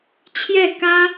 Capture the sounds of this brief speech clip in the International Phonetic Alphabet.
t͡ɕʰ j ɛ˥˩ k ä˥

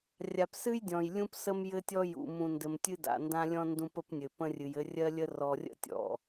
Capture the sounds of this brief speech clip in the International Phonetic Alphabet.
rʲ a˨ p s ɨ˦ j dʲ ɔ̃˨ j lʲ ũ˦ p s ə˦ m j ɘ˦ tʲ ɔ˦ j ṵ˨ m ũ˨ n d ɘ˨ m tʲ ɨ˦ d a̰˨ n d ã˦ lʲ ɔ̃˦ n d ũ˦ p ə˦ p nʲ ɘ˨ p ə̃˦ rʲ ɨ˨ j ɘ˦ rʲ ɜ˦ lʲ ə˦ r ɔ˨ rʲ ə̰˦ tʲ ɔ̰˨

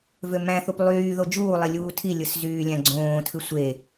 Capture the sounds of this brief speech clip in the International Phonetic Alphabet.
v ø m æ̃ θ u p lˠ yː ð o d͡ʒ uː lˠ i lʲ uː tʰ i lʲ ɯ s z yː lʲ æ̃ ɡ͡ǀ õː tʰ ɯ sʷ e

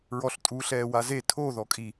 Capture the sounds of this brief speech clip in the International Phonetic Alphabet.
ɹ ɔ ɬ tʼ u ɬ ɛː w a z e tʰ o ð ɔ kʼ i

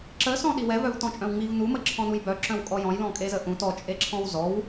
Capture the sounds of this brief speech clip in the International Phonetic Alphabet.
ǁ ə s ɔ̃ ɗ i w ɛ v œ v t ɔ̃ t͡ʃʼ œ̃ w ŋ͡m i v n u m ə ǁʰ ɔ̃ n u j b œ ǁ œ̃ w kʼ ɔ j ɔ̃ j l ɔ̃ kʼ e z ə ʔ ũ t ɔ t͡ʃʼ e ǁʰ ɔ̃ w z ɔ w

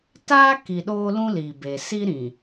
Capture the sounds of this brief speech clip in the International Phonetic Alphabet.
t aː˦ k i˨ ɗ oː˦ l ũ˦ l i˨ b e˨ s i˦ ɾ ĩ˨

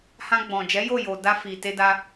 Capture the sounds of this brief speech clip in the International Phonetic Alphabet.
h ã˧ ɡ͡b ɔ̃˨ d͡ʒ ɛ˨˦ j o˦˨ j o˨ d a˧ f i˨ t e˧ d a˧

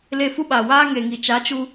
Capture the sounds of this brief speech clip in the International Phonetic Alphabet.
l e˧ f u˦ ɓ aː˨ w aː˦ ŋ e˨ ŋ i˨ t͡ʃ a˨˦ t͡ʃ u˧

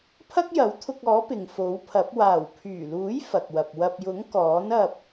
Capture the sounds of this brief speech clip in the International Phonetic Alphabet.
pʰ ɐ˥ k̚ j ɐ˨˥ w t̪ʰ ʊ˧ k̚ ɔː˨˥ p ɪ˨ ŋ f o˨˥ w pʰ ɐ˨˥ p̚ w aː˨˩ w pʰ yː˨˩ l uː˨˥ j f ɐ˨ k̚ w ɐ˨ p̚ w ɐ˨ p̚ j ʊ˨˥ ŋ k ɔː˨˥ n ɐ˧ p̚

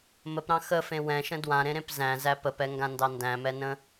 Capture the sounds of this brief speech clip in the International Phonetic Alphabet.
m ə p ɾ ɑ̃ x ə f ẽ w ɛ̃ ʃ ə̃ d w ã ɾ ẽ ɾ ẽ p z æ̃ z æ p ə p ɛ ŋ ɡ ã n d ɑ n d æ̃ m ɛ n ə̃

